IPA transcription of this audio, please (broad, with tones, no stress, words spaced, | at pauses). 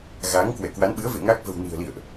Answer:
ɣaː˨˦ŋkwɛ˧˩kwa˨˦nɓɨ˨˦ə̯ vḛ˧˨ ŋa˦˥k̚ və̤˨˩wni̤˨˩ə̯ lḭ˧˨ə̯ʔ